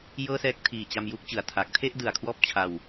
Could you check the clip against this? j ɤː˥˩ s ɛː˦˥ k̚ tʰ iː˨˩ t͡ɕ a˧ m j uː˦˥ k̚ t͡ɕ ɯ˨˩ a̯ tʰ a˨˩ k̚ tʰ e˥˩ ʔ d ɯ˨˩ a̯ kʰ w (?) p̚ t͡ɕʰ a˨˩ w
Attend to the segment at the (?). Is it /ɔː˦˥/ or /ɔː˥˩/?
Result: ɔː˦˥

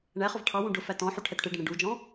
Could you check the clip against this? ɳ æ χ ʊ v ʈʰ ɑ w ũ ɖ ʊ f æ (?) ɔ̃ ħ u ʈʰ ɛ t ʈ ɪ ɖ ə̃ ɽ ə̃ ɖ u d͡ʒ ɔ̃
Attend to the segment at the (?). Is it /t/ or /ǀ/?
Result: t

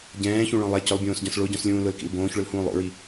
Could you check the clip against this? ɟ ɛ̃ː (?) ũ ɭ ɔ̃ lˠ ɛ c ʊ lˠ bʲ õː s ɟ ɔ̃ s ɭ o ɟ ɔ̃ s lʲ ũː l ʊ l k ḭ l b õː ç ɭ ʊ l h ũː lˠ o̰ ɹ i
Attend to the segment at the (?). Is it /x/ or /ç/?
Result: ç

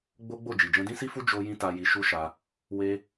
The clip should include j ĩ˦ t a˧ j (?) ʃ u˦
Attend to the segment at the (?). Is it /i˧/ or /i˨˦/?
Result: i˧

